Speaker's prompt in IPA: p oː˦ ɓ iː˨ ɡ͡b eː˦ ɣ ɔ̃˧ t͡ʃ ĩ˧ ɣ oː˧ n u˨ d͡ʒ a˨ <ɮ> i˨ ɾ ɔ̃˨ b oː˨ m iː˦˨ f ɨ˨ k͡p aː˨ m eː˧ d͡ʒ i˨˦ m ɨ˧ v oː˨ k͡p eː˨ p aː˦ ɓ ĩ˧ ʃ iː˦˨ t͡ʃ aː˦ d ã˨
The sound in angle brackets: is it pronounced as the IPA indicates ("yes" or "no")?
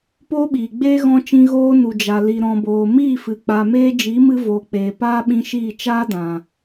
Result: no